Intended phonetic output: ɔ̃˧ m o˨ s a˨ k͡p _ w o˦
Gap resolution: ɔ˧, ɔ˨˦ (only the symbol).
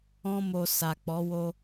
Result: ɔ˨˦